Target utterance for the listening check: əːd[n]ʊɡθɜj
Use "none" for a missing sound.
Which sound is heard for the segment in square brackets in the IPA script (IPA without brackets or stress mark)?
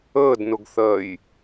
n